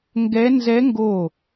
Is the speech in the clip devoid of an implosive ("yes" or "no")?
yes